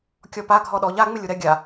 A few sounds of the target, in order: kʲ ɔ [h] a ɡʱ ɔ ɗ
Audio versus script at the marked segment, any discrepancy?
yes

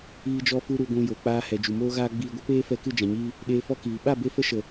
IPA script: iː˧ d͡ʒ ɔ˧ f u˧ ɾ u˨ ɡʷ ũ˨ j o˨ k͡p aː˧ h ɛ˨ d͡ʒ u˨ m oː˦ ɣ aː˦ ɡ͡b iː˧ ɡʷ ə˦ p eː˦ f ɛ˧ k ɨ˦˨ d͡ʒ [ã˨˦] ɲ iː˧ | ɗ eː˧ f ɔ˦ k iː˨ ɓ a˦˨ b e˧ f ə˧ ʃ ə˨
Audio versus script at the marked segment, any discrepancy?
yes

